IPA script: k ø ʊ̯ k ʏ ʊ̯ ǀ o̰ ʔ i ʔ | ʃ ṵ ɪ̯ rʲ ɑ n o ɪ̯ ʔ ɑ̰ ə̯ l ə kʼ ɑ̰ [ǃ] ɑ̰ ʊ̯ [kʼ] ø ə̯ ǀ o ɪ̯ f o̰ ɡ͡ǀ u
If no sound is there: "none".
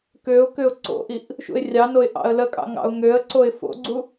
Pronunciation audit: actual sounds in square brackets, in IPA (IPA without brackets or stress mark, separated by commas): ŋ, ŋ